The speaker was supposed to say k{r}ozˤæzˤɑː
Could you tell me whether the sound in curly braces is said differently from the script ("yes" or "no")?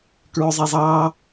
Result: yes